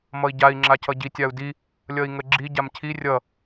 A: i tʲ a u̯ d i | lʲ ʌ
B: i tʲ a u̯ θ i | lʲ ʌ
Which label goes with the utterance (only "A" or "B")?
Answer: A